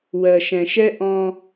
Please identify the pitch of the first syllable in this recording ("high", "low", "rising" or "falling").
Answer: low